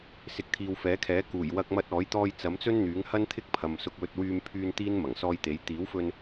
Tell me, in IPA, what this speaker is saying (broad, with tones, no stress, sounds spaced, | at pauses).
s ɪ˨˥ k̚ t̪ʰ iː˨ w f ɛː˨˥ kʰ ɛː˨˥ k uː˨˩ j w ɐ˧ k̚ m ɐ˧ t̚ ɔː˨˥ j t̪ ɔː˧ j t͡s ɐ˨˥ m t͡s ɵ˥ n n̪ yː˨˥ ŋ h ɐ˥ n t̪ʰ ɪ˥ k̚ pʰ ɐ˨ m s ʊ˧ k̚ w ɵ˧ t̚ w yː˧ m pʰ yː˧ n t̪ iː˥ n m ɐ˨˩ ŋ s ɔː˧ j t̪ e˨˥ j t̪ iː˨˥ w f ɵ˧ n